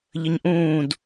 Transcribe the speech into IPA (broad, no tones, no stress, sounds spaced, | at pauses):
ʎ ə ɲ ʔ ũː d